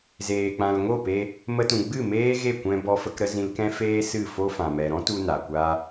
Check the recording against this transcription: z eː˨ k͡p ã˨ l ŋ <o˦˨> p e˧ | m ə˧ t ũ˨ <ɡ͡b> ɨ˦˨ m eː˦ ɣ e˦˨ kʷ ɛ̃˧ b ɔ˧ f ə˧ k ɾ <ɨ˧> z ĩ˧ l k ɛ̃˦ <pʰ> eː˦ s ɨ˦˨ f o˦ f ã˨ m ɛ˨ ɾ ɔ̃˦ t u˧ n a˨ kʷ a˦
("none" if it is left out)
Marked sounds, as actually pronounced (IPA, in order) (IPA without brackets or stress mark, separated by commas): o˦˨, ɡ͡b, ə˧, f